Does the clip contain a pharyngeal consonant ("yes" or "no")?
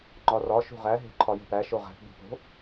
no